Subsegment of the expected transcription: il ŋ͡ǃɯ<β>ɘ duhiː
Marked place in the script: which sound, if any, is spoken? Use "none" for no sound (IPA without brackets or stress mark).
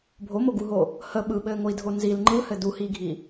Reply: h